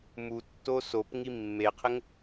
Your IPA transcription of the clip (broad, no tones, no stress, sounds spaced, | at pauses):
m u tː o s o p ŋ i mː e qʰ ɘ ŋ